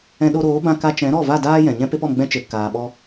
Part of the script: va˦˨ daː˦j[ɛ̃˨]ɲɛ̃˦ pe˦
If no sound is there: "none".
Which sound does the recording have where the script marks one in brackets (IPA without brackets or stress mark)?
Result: ɛ̃˨